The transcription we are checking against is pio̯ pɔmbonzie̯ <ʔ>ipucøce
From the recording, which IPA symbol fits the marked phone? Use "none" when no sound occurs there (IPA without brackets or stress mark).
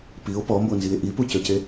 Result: ʔ